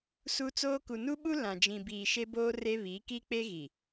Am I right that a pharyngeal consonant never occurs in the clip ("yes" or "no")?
yes